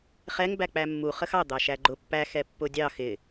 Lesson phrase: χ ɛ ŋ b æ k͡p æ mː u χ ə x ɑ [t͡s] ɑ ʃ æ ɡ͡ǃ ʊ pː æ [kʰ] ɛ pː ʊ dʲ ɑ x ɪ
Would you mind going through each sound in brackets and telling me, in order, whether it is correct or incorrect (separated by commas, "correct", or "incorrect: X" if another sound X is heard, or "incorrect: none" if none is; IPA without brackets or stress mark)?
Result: incorrect: d̪, incorrect: x